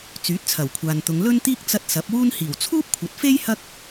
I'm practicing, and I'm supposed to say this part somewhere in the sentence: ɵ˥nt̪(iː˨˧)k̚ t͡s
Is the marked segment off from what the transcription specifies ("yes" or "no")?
yes